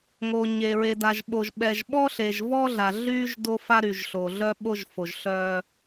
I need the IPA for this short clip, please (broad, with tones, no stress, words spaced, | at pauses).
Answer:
ŋo˨ɲe˨ ɹe˨da˨ʒɓo˨ʒ ɓɛ˨ʒɓɔ˦ ɬe˨ʒvɔ˦ɮa˨ ɮy˦ʒ do˦fa˦ɾy˨ʒ ɬo˨ɮœ˦ɓo˦ʒfo˨ʒ ɬœ˦